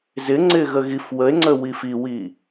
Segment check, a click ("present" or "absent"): present